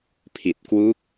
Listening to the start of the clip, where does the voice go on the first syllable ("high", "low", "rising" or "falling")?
low